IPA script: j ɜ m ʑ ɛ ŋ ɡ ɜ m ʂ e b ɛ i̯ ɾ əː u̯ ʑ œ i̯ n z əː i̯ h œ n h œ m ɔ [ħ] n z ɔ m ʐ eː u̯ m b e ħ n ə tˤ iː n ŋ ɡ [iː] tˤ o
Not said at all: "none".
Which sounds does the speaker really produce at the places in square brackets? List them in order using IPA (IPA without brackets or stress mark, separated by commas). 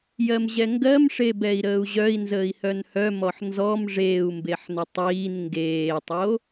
ħ, eː